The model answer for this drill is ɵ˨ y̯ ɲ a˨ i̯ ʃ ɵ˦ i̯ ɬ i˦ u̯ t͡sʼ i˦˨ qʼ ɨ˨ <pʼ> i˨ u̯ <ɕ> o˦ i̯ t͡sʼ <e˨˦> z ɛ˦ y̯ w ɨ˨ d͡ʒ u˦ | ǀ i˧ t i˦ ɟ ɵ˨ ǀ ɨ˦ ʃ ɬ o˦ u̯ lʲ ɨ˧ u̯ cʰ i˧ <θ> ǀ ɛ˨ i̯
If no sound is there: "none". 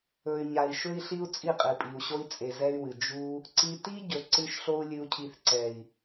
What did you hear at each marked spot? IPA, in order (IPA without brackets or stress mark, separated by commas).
pʼ, ɕ, e˨, θ